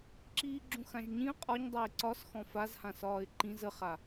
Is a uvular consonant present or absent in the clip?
present